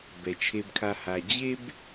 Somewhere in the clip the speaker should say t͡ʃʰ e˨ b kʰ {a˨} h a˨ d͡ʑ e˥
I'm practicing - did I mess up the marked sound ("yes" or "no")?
no